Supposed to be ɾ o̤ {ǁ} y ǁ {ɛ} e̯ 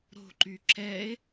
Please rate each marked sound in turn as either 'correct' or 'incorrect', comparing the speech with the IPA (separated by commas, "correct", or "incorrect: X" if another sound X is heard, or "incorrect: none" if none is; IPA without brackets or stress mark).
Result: incorrect: ǃ, correct